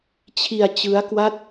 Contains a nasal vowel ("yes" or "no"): no